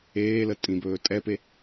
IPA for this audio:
eː l ə tʼ ĩ b ɵː tʼ ɛ p e

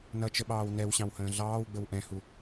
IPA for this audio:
n ʌ t͡ʃ ə ɓ ɑː w n ɛ w ɕ ɑ̃ w h ə̃ː ɮ ɑː w ɡ͡b ə w ʔ ɛ̃ h u

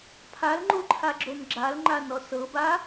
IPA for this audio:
pʰ a l ŋ͡ǃ u ǃʰ a ɡ͡ǁ o n ɡ͡ǁ a l ŋ͡ǃ a n ɔ s ɤ b a

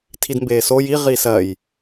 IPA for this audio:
tʰ i d m b eː s o j i ʁ i s ɜ j

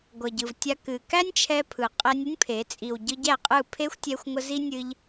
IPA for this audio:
ɡʷ ʌ˨ ɟ ɯ˨ v tʲ a˧ k ɨ˨ k æ˦ nʲ t͡ʃʰ ɛ˧ pʰ ɯ˨ qʼ ɛ˧ nʲ ə˦ nʲ pʰ e˨˦ t͡sʼ i˨ w ɟ ɯ˧ ɟ æ˦˨ qʼ ɯ˦˨ pʰ e˦ xʷ tʲ ɛ˧ xʷ ŋʷ ə˧ z i˦ nʲ ɨ˧ ʎ

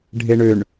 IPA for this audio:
ɖʱ e ɳ ø ɳ

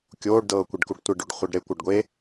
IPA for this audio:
kʲ oː ɖ d ɤː kʷ e ɖ k u ɖ tʷ e ɖ o ɖ χʷ e ɖ ɾ e kʷ ɤ ɖ ɡʷ e

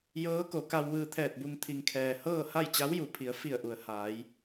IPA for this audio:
j ɤː˧˥ k o˩˧ k a˧ w ʋ ɯː˧ t̪ʰ ɛː˧˩ t̚ b u˧ ŋ t̪ʰ i˩ ŋ kʰ ɛː˩ h ɤː˥˨ h a˥˨ j t͡ɕ a˧˥ w j u˩ pʰ i˩˧ ə̯ f i˧˩ ə̯ ʔ u˩ ə̯ h aː˩˧ j

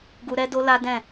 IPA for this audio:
ɡ u˧ ɾ ɛ˦ d o˦ l a˦ d ɛ̃˦˨

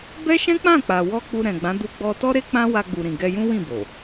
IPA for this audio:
b ɛ˦ ʃ ɛ̃˦ k͡p ã˦˨ k͡p a˨ w ɔ˧ k͡p u˧ ɾ ɛ̃˨ ɡ͡b ã˨˦ d u˧ ɡ͡b ɔ˧ t ɔ˦ ɾ e˦ k͡p ã˦ w a˧ ɡ͡b u˨ ɾ ĩ˨ ɡ ɛ˧ j ũ˦ w ĩ˦˨ b o˨

